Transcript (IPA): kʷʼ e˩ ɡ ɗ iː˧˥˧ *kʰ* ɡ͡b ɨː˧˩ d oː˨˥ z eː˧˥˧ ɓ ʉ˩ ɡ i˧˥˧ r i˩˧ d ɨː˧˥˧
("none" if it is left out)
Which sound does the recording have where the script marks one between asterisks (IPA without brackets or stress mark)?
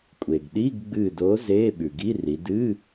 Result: ɡ